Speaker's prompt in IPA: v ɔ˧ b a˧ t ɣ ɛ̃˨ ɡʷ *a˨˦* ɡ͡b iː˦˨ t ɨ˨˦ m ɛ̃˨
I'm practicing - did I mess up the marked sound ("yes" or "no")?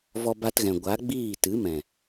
no